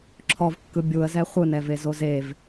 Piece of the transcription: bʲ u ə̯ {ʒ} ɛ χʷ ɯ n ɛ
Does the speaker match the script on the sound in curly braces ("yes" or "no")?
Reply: no